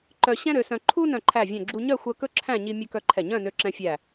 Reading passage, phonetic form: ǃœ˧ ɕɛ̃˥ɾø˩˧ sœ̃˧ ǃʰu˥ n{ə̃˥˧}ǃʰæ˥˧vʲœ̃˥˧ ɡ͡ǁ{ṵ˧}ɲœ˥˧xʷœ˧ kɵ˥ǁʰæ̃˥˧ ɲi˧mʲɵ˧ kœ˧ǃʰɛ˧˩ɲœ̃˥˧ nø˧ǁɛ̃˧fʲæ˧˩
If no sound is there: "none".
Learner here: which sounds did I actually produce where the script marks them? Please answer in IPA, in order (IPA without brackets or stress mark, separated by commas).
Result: œ̃˥˧, u˧